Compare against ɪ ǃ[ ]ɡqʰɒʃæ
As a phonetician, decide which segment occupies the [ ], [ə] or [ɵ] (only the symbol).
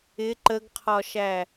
ə